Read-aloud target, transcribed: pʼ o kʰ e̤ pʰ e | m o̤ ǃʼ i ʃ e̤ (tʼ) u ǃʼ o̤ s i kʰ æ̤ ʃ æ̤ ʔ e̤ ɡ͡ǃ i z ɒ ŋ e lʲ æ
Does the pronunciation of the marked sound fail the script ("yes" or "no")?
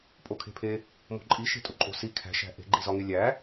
no